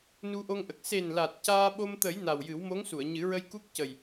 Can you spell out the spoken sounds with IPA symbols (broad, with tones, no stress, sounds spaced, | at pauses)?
n u˧ ʔ o˧ ŋ ʔ ə˨˩ k̚ s e˨˩ n l a˨˩ t̚ c aː˧ ɓ o˧ m t̪ ə˨˩˦ j n a˨˩ w j ɨ˨˩˦ w m o˧˥ ŋ s u˨˩˨ ə̯ ɲ ɨ˨˩˦ ɹ ə˧ j k u˦˥ k̚ c ə˨˩ j